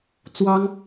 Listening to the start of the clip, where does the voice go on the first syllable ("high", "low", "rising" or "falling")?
high